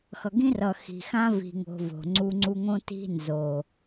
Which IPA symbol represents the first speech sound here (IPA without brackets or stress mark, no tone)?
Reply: x